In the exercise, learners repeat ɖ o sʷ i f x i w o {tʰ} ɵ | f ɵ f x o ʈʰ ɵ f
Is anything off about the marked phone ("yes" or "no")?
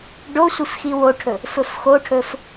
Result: yes